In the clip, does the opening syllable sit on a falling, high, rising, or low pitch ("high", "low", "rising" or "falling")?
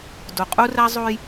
low